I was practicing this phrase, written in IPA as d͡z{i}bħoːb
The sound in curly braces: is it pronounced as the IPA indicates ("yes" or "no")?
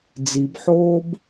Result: yes